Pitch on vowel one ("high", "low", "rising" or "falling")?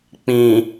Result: low